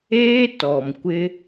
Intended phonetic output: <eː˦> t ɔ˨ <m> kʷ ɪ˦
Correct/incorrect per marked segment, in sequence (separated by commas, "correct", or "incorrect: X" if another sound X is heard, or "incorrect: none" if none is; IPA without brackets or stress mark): correct, correct